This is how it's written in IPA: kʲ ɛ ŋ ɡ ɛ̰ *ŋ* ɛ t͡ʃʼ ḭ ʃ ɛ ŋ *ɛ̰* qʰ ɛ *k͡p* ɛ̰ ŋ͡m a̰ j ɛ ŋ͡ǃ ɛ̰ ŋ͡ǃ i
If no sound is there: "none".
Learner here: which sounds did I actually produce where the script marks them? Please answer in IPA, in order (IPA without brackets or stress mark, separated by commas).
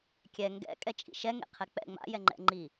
kʼ, ḛ, k͡p